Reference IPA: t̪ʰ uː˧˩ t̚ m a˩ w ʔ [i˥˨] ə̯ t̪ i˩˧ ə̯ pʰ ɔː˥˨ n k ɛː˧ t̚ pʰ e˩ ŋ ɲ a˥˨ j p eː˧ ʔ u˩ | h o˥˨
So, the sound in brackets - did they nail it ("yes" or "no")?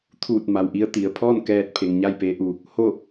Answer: no